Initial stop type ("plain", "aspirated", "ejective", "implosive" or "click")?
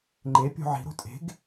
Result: click